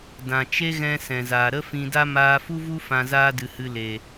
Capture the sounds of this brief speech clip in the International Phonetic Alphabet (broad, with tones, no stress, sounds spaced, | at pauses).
d ã˨ t͡ʃ e˦ ɣ ɛ̃˧ s ɛ̃˨ z aː˨ ɾ ə˦ f ĩ˧ d a˦ m aː˧ f u˦ v u˦ f ã˧ z aː˦ d ɨ˨ h ɨ˧ l e˨